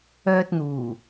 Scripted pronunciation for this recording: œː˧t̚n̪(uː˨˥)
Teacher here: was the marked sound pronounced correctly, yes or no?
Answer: no